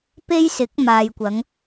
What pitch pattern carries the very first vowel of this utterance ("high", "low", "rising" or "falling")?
high